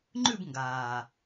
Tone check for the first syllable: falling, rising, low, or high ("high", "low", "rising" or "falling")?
falling